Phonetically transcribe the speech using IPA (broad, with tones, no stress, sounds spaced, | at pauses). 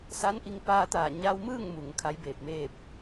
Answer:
s a˧˥ n ʔ i˧ ŋ p aː˧ t̪ aː˧˩ ɲ a˧ w m ɯː˥˨ ŋ m u˩ ŋ kʰ a˧˥ j b eː˧˩ p̚ m eː˥˨ p̚